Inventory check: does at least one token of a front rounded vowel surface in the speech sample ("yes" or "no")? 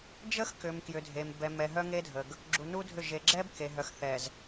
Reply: yes